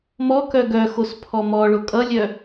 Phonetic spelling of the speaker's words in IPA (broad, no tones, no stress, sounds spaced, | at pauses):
m ɔ k œ ɡ œ x o s pʰ ɔ m ɔ ɭ o kʼ ʌ lʲ œ